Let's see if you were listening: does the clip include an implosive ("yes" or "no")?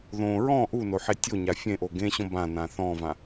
no